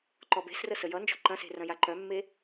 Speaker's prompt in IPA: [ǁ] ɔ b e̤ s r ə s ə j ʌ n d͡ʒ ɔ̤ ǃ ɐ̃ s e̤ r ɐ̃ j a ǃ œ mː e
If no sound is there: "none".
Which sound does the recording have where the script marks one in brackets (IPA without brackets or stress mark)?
ǃ